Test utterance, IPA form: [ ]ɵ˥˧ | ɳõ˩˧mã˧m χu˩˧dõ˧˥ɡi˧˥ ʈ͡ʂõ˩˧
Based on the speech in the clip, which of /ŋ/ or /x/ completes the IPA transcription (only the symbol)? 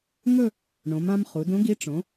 ŋ